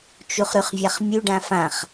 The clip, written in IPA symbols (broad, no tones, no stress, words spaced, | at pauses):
t͡ʃuχɾʉχvʲaχmʲʉ ɖãfãχ